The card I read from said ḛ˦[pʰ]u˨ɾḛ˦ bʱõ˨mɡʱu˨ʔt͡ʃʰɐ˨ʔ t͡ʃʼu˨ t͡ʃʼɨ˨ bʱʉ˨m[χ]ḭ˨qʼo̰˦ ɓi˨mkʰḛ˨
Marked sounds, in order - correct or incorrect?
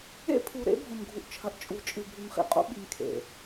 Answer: correct, correct

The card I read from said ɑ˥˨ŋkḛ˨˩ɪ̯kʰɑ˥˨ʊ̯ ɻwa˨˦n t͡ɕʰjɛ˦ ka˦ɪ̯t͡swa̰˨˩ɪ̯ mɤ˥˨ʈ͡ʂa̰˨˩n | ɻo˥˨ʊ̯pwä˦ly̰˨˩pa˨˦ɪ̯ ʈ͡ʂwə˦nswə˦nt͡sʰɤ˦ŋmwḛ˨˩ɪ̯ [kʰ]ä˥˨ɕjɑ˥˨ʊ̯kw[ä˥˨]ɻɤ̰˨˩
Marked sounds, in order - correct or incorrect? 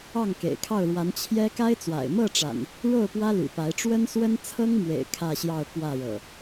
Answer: correct, correct

